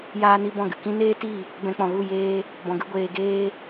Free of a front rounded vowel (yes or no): yes